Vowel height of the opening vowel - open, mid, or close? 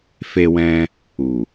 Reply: mid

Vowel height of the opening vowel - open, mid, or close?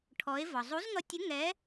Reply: mid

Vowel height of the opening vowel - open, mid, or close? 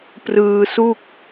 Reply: close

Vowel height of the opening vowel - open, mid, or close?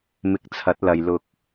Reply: close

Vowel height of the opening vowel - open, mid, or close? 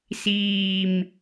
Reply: close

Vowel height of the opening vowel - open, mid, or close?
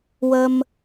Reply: mid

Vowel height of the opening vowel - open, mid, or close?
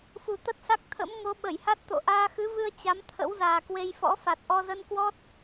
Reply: close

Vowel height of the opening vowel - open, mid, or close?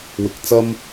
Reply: close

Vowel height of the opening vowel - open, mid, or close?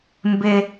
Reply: mid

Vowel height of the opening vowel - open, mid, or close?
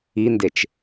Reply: close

